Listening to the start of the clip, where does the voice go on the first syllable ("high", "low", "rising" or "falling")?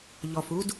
low